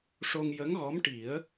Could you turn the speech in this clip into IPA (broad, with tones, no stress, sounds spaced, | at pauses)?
ʂ o˧ ŋ j ə˧˥ ŋ ɣ ɔ˧˥ m ʈ i˨˩˦ ə̯